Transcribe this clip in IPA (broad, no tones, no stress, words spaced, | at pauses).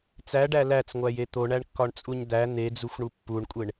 t͡sæɖæ læt͡sŋʷæje t̪oɳæɳkːɒɳt͡sʼuɲ d̪æ n̪ed͡zuxʷɳu pːuɳkʷʼeɳ